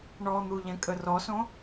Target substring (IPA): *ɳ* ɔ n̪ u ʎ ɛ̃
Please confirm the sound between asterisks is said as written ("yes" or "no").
yes